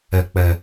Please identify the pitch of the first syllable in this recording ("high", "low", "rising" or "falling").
low